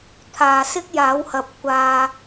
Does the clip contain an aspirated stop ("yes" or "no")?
yes